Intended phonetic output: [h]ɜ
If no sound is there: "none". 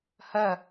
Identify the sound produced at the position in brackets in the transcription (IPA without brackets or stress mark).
h